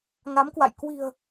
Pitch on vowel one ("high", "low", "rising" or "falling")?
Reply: rising